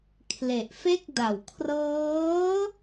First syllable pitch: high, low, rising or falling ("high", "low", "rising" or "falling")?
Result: low